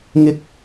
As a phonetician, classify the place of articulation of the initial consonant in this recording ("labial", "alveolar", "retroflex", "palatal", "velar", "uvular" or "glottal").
velar